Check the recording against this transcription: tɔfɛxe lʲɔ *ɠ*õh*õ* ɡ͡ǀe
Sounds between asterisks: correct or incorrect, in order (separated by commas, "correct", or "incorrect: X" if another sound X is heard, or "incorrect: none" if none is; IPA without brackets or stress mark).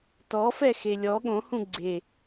correct, incorrect: ũ